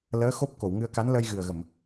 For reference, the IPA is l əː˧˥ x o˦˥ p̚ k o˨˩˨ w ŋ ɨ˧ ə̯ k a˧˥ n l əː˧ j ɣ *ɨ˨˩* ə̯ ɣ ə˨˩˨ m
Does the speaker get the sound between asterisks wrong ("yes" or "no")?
no